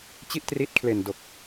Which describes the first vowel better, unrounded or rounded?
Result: unrounded